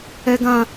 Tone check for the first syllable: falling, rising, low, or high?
high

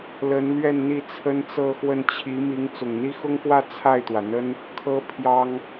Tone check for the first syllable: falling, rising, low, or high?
rising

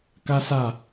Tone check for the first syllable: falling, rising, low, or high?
high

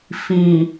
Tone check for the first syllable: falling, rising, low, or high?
low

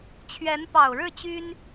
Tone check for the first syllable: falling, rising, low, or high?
rising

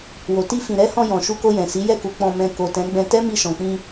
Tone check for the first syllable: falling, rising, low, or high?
low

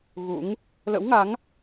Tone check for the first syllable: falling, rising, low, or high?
rising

